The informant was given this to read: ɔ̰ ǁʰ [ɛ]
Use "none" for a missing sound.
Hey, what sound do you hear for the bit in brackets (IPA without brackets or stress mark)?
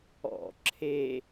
e